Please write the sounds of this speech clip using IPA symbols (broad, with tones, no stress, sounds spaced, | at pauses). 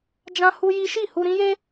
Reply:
d͡ʒ ã˦ h u˦ j i˦ ʃ i˦˨ h u˧ ɾ ĩ˦ j e˦